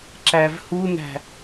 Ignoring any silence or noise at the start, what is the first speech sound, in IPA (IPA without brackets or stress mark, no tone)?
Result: ǁ